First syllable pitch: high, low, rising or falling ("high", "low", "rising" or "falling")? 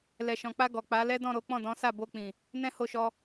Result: low